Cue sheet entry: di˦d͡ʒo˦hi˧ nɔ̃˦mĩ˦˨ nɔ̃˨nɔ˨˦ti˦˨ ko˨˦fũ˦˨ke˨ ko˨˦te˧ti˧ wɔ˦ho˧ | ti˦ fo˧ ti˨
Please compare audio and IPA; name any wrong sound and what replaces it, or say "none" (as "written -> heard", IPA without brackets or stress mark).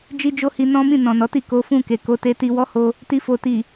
d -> d͡ʒ